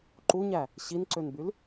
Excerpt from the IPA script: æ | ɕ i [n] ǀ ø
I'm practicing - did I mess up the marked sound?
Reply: no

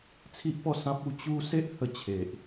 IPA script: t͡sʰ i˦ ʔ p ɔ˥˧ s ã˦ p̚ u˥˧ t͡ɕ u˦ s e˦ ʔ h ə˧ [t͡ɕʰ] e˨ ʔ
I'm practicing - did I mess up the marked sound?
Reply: no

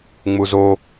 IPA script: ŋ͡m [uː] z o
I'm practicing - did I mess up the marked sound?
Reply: yes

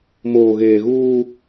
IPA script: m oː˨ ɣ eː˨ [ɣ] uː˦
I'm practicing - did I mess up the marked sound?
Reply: no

